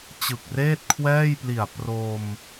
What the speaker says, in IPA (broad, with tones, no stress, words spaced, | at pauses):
t͡ɕɯ˨˩k̚reː˥˩t̚kʰwɛː˥˩jpli˨˩a̯ pro˧m